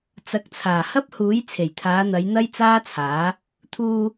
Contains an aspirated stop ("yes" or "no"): yes